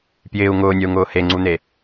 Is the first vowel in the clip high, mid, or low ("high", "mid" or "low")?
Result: high